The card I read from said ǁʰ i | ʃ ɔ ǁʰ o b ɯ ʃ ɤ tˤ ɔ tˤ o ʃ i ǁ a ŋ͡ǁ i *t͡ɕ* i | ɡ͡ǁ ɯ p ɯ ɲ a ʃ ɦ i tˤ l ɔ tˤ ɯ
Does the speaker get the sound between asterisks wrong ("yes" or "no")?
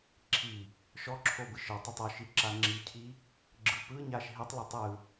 yes